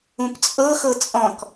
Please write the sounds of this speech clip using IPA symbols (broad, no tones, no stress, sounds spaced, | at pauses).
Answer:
ũ p t͡sʼ ɤ x ɤ t͡sʼ ɔ̃ k